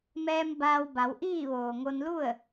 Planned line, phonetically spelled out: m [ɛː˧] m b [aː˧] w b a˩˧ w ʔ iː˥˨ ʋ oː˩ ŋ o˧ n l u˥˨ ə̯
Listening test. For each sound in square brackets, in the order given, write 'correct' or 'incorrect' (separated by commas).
correct, correct